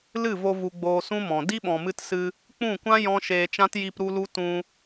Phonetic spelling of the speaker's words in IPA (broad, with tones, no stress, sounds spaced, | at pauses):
l ɨ˦˨ v o˧ v u˧ ɡ͡b oː˧ s ũ˦ m ɔ̃˨ d i˦ ɓ ɔ̃˨ m ɨ˧ t s ɨ˧ | k͡p ũ˦˨ kʷ ã˦ j ɔ̃˦ ʃ eː˧ t͡ʃ ã˦ t j i˧ p ɾ u˦ l u˦ t ũ˧